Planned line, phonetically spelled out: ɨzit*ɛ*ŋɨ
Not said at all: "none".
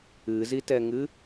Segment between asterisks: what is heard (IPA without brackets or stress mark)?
ɛ